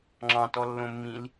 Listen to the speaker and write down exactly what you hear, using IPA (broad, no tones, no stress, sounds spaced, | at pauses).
ŋ͡ǁ ɑ̃ t ɔ lː õ mː ĩ l